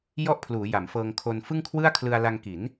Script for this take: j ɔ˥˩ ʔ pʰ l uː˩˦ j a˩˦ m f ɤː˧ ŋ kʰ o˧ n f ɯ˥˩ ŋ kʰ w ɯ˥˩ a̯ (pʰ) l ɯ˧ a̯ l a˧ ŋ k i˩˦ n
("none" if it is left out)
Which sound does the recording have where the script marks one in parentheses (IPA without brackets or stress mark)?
kʰ